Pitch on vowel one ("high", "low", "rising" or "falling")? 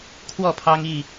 falling